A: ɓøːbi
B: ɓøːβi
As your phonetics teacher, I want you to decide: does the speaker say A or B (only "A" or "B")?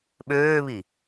B